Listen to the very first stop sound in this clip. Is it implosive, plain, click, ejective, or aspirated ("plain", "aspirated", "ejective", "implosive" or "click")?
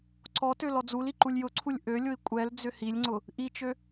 click